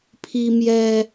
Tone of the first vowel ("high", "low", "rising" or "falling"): high